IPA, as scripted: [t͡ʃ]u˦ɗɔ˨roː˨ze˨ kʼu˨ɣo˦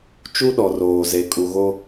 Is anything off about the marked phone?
no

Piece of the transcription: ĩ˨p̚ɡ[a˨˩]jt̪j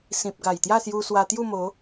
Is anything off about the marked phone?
no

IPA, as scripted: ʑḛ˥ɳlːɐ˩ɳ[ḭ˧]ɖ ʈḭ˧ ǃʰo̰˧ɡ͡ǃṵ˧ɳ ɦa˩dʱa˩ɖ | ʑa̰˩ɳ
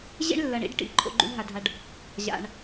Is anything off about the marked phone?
no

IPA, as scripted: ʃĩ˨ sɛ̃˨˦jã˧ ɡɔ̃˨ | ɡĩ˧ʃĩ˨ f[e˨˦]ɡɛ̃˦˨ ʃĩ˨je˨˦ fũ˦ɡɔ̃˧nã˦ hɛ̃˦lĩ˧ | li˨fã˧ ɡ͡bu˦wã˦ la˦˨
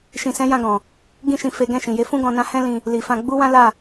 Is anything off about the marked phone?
no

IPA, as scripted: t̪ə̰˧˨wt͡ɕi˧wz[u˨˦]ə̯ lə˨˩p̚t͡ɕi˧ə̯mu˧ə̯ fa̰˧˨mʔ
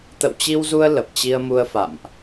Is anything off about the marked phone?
yes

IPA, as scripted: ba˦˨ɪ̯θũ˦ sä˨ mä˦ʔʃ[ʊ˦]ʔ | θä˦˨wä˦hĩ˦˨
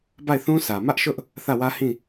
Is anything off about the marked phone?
no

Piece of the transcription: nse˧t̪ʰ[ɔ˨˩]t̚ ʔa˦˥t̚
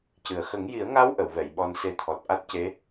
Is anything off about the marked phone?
no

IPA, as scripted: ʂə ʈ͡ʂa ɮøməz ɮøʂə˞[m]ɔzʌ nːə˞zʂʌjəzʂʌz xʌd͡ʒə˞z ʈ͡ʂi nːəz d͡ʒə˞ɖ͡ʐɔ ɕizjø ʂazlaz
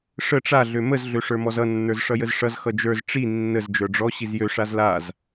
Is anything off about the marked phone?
no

